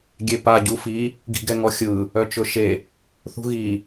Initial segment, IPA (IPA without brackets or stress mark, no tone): ɡʲ